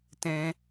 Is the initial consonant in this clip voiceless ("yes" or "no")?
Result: yes